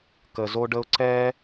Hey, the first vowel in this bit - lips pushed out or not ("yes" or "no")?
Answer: no